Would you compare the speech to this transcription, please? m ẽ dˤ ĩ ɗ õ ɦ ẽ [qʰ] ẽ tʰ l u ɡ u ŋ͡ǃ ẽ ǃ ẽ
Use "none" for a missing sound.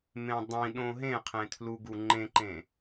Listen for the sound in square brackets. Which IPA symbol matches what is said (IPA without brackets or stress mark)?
qʰ